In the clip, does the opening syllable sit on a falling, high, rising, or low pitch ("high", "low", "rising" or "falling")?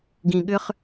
low